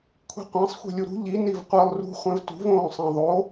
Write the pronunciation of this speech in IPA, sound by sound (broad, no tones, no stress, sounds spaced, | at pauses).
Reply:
kʷʰ i̤ qʷ ã sˤ xʷ i̤ lʲ u ɾ ṳ ʎ i n i v qʷ ɯ lˠ r ṳ χʷ ɛ̃ v t ṳ v õː sˤ ẽ ðˤ o